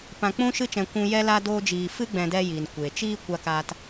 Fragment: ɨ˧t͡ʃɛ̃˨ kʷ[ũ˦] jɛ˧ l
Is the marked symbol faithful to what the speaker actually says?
no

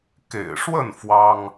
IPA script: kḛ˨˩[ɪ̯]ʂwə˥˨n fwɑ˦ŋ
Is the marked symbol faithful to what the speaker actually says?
yes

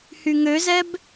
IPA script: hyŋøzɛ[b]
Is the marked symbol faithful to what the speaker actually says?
yes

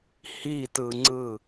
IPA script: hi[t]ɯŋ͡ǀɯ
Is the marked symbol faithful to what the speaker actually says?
yes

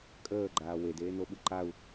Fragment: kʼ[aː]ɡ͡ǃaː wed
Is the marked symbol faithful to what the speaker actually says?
no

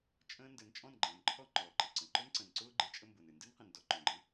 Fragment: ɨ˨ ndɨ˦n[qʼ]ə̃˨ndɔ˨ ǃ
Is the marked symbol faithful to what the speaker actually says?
no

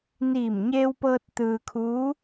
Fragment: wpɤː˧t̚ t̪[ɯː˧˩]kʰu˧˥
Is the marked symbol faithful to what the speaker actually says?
no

